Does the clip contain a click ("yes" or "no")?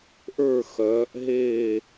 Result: no